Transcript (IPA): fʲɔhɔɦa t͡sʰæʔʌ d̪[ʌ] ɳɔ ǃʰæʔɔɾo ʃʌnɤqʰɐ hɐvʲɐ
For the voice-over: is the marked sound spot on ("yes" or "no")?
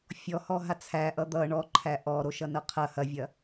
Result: yes